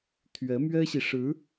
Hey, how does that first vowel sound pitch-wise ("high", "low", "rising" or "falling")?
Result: rising